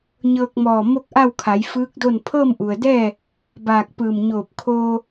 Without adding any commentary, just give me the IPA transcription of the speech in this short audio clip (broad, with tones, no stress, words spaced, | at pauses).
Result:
ɲɤː˧k̚mɔː˧˩ mo˥˨k̚ʔa˥˨wkʰa˩˧j fɯː˧˥k̚do˥˨n pʰɤː˥˨mʔu˩ə̯dɛː˥˨ | baː˧˩k̚ pɯː˧˩mɲoː˧˩p̚ kʰoː˧